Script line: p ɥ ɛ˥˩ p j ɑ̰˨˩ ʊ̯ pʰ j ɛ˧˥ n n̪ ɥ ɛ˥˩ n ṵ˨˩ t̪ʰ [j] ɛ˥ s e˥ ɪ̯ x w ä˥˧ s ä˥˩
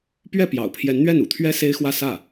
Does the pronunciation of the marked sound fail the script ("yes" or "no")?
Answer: yes